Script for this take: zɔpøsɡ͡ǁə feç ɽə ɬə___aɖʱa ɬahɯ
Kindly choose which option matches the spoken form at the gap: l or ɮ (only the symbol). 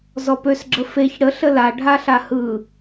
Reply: l